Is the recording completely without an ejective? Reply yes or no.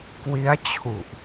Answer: yes